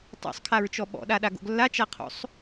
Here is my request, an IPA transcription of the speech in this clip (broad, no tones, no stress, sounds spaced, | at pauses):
tˤ o̰ sˤ kʰ a ɹ t͡ʃ ɔ ɓ ɔ̰ ɗ a ɗ a ɡ o̰ ɡ lː a t͡ʃ a qʰ o̰ sˤ